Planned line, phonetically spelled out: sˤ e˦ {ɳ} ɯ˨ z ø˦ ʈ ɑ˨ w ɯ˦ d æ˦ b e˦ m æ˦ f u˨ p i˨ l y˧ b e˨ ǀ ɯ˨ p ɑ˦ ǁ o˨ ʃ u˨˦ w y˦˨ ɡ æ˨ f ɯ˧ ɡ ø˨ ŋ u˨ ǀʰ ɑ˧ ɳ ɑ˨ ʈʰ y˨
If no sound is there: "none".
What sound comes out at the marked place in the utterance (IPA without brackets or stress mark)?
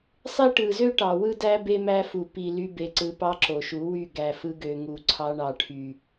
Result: ʈ